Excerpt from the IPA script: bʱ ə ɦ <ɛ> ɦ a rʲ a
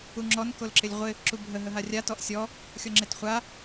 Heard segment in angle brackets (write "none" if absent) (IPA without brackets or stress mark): ə